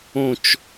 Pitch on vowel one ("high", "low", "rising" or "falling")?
falling